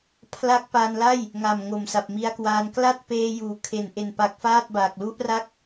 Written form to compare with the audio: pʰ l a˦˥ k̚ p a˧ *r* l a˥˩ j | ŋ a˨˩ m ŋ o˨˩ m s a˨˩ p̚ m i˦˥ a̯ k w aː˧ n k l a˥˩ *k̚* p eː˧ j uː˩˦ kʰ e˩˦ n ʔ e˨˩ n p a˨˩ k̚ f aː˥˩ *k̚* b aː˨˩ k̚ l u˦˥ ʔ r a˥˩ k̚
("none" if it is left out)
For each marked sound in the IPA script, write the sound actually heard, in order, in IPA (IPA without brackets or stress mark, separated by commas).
n, t̚, t̚